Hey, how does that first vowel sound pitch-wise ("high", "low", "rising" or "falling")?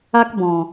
high